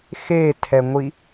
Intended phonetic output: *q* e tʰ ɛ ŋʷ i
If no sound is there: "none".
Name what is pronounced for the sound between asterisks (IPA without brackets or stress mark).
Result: x